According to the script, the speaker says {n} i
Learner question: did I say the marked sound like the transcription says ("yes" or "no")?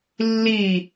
no